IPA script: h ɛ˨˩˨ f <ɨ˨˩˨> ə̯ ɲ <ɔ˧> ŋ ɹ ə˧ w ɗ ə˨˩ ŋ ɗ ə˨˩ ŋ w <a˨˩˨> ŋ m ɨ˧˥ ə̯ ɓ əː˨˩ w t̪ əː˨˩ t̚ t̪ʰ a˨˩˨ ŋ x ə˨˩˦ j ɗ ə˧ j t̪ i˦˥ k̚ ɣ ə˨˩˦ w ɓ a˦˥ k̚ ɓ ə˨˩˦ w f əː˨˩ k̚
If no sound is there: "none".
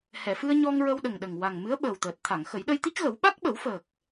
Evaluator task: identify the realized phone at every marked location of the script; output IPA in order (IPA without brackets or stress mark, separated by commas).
ɨ˧, ɔ˧, a˨˩